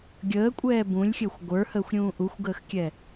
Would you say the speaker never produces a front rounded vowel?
yes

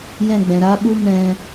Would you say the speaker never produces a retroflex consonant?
yes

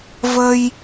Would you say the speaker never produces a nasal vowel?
yes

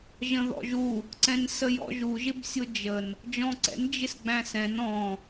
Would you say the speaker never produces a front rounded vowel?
yes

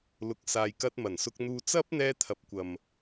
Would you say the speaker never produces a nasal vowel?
yes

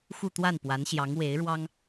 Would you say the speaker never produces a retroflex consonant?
no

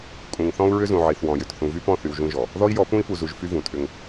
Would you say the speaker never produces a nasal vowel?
no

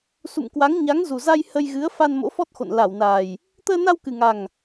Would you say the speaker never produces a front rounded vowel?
yes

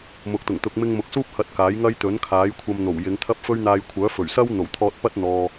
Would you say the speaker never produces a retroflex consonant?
yes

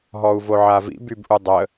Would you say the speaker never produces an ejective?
yes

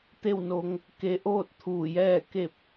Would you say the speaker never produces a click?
yes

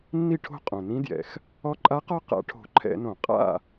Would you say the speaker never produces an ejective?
no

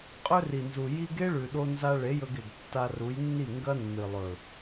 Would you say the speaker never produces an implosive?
no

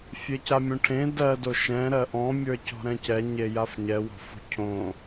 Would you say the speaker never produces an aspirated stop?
no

